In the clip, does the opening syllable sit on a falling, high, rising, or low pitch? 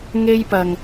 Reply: high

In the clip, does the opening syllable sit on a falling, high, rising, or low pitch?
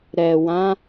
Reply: low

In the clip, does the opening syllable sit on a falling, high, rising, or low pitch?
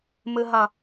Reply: high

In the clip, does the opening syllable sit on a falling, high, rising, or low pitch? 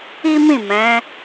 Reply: high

